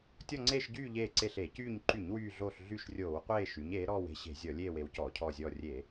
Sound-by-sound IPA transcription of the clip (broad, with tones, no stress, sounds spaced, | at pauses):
tʲ ɔ˦˨ ŋ͡ǀ eː˦˨ ʃ ɟ yː˦˨ ʎ eː˦˨ ǀ e˦˨ ɬ e˧˩˧ c yː˦˨ ɲ ǃ y˧˩˧ ɲ w yː˦˨ ɮ oː˦˨ ɬ ɮ y˦˨ ʃ rʲ oː˧˩˧ w qʷ eː˦˨ ʃ y˩˧ ɲ eː˩˧ ɾ ɔː˦˨ w e̤˦˨ ɕ e̤˧˩˧ zʲ ɔ˧˩˧ lʲ eː˦˨ w e˩˧ w c ɔː˧˩˧ cʰ ɔː˦˨ zʲ ɔː˦˨ rʲ e˧˩˧